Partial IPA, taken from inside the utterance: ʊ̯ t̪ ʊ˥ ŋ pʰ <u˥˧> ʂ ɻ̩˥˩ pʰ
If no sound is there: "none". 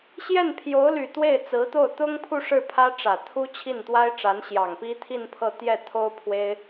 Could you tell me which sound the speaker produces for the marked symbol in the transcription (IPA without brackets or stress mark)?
u˥˧